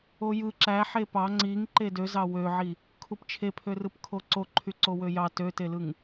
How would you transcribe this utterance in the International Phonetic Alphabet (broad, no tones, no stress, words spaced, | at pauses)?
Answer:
ojɯ ǁæħe pɑ ŋ͡ǀiŋ ǃedøzɑ wøʕi | kʰupt͡ʃʰepʰø rɯpkʰoǀo ǃʰyǀowøjɑ tøtelɯŋ